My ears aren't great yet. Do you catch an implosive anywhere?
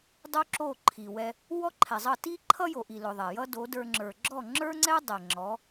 no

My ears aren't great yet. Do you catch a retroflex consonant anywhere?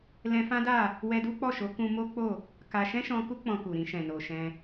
no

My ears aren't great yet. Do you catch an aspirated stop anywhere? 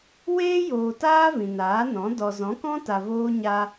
no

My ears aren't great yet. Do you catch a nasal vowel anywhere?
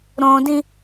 yes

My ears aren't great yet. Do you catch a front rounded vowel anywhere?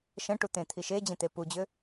yes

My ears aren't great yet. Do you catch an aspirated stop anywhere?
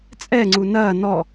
no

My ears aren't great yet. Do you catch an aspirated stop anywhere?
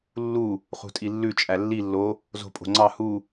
no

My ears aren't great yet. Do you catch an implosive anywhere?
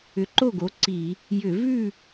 no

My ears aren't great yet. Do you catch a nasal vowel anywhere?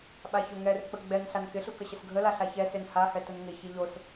no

